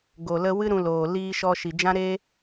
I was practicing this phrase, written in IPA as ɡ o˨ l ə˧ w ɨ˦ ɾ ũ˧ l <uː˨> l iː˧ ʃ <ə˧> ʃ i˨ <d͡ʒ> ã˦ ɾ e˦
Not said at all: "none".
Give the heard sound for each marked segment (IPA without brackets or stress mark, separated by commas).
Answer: oː˨, ɔ˧, d͡ʒ